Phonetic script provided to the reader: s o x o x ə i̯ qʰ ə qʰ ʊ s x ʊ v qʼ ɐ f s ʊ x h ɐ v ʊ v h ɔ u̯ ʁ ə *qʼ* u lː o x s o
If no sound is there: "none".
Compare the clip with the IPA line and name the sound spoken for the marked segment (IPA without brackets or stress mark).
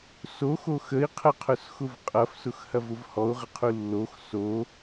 qʰ